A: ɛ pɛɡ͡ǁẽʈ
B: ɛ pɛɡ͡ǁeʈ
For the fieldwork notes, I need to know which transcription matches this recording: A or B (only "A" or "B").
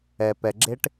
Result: B